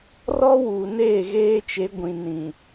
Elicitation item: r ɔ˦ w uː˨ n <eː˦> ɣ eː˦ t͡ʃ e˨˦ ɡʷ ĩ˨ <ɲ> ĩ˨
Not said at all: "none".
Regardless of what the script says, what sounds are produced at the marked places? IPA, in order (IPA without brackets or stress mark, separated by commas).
eː˦˨, n